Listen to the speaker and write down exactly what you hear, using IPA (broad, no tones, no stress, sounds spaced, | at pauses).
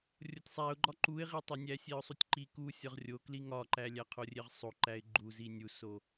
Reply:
rʲ o tʲ sˤ æ ʊ̯ ɡ͡ǃ ɒ ǃ u ɪ̯ ʁ i tˤ e nʲ æ sʲ e ʊ̯ sˤ u tʲ ǃ i k u sʲ ɒ ʁ rʲ o k l i ŋ ɒ ǃ æ lʲ æ qʰ o rʲ e ʁ sˤ o ǃ æ ɪ̯ ɡ͡ǃ u z i nʲ u s o